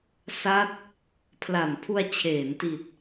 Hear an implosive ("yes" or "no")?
no